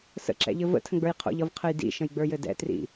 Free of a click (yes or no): no